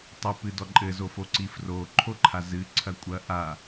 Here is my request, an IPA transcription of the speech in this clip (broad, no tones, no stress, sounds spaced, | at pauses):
tˤ ɛ p ɨ d ɔ ǃʼ ɘ z o f o ǀ i f r o ǃʰ o ǃʰ a z ɨ ǀʰ ɐ kʷʼ ɐ ʔ a